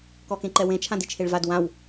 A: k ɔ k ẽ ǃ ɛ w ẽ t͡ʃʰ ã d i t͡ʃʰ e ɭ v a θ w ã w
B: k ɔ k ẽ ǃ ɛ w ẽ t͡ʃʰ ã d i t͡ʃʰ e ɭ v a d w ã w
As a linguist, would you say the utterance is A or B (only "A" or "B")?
B